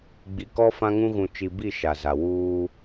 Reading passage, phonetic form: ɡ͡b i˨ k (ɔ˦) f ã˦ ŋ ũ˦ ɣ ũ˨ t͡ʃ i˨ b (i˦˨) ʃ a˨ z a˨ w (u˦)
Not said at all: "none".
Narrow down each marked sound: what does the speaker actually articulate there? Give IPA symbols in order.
ɔ˦, i˦˨, uː˦

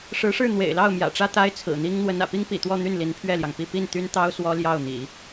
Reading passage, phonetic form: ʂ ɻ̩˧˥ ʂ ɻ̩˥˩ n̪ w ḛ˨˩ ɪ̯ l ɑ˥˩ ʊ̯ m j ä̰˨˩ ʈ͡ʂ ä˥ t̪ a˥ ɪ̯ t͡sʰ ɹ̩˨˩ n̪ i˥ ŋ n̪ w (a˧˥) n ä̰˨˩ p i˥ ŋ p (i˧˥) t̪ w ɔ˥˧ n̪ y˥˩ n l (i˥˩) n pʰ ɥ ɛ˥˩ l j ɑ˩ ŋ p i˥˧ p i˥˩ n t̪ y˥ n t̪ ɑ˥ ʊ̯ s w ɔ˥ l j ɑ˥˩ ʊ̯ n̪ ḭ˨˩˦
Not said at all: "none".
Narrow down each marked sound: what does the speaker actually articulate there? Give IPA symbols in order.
ə˧˥, ḭ˨˩, i˧˥

